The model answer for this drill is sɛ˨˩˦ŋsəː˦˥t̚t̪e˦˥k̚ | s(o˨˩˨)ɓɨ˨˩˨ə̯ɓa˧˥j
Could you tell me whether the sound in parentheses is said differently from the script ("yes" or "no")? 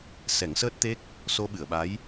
yes